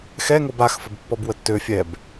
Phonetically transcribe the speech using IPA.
xɛŋob axfəbpːɔb wətːø fʲɛb

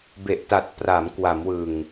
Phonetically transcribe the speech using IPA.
be˨˩ʔta˨˩t̚ pra˩˦m kwa˩˦mwɯ˨˩ŋ

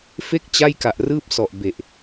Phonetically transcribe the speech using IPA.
fe˥˩k̚ t͡ɕa˥˩jka˨˩ʔrɯː˥˩p̚sɔ˨˩ʔ be˨˩ʔ

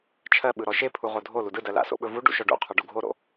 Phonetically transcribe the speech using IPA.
t͡ʃʰɜɓɯɾɔ ʃe pʰuʁodʱo ludɯdɜ la̰so̰ɓɵvu ɖṵʃɔɖṵ qʰɔɖṵɡʱoɾo̰

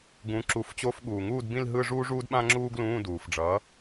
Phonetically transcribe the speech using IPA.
ɡũ˩˥ǁu˩˥f t͡ɕo˧˥˧fɠuː˩ŋuː˥˧dbĩ˥˧l ɦɯ˥˧ʐuː˥ʐuː˥dɓã˥ ŋ͡ǁuː˥ɡlũː˧˥˧duː˩fɖ͡ʐʌː˩˥

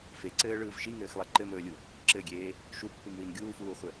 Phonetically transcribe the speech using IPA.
feǀɘːɭɯːv ʃiŋɘːxlˠe ǃɘmɵːlʲu | ǁɘɡʲeː | ʃupːɯmwin ɡʲuːfuːχʷɘ

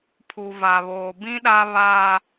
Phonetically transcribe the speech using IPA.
pʰu˨va˨βoː˨ bĩ˦ɗa˦ βaː˦

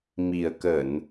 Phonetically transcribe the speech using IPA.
mi˨˩ə̯kə˧˩˨n

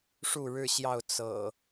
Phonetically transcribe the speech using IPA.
ʂu˥˨ɻɻ̩˥˨ɕjɑ˥˨ʊ̯ t͡sɤ̰˨˩

